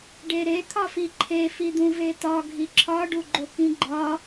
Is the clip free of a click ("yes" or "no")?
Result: no